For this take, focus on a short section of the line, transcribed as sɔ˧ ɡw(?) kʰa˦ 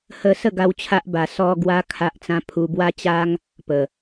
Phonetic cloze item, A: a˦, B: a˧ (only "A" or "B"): A